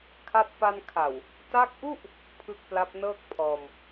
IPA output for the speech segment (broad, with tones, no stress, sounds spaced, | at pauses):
kʰ a˥˩ t̚ p a˧ n kʰ a˨˩ w | t a˦˥ k̚ ʔ u˥˩ ʔ | pʰ ɯ˦˥ k̚ p l a˦˥ p̚ n ɤː˥˩ k̚ pʰ ɔː˧ m